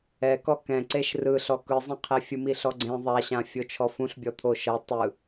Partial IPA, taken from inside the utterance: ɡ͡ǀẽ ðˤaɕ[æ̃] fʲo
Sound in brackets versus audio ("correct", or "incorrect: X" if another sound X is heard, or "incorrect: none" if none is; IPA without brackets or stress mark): incorrect: ã